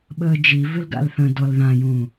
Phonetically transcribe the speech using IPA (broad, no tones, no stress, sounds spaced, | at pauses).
ɓ əː d͡ʒ i v ɪ l ɡ a̰ l θ ə̃ d ɔ l ð ã j ũː